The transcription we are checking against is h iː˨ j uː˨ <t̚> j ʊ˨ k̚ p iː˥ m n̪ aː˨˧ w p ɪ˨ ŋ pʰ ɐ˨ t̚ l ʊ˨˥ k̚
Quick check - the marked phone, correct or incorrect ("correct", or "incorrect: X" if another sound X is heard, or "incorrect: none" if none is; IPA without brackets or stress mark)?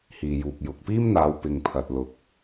incorrect: k̚